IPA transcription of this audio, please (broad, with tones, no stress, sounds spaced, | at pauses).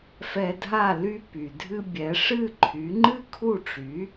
f ɛ˧ dʱ a˥˩ l y˧ p y˩ dʱ ɨ˧ bʲ ɛ˩˥ ʂ ɨ˥˩ ǃʰ y˩˥ ŋ͡ǃ ɨ˥ kʰ u˥˩ ʈ͡ʂ y˩˥